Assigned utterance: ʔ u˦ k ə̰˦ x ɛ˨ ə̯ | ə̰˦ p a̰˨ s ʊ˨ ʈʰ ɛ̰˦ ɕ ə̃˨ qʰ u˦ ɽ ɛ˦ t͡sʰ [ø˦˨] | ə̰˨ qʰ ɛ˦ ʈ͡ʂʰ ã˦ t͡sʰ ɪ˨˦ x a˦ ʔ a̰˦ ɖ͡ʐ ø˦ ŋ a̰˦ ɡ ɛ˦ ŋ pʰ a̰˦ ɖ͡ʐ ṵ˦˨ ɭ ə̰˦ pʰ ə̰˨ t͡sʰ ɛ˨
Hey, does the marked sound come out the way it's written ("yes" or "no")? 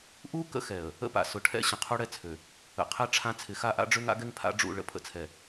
no